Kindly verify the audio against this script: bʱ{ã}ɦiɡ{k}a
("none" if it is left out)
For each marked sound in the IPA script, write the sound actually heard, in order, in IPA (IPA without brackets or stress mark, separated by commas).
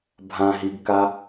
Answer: ã, k